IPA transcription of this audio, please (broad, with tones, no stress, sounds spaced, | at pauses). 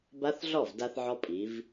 b a˦˥ θ ɮ ɔ˥˩ v d a˧ θ ʕ ɔ˧ pʼ i˩˧ v